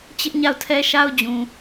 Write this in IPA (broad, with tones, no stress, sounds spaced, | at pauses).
t͡ɕ ɪ˦ ʔ ɲ a˦˨ ʊ̯ tʰ ɛ˦ ʃ a˦ ʊ̯ d͡ʑ ũ˨